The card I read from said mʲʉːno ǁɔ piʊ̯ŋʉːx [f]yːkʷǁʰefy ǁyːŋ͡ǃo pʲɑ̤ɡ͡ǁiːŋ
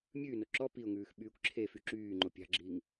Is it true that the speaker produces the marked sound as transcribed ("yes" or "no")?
no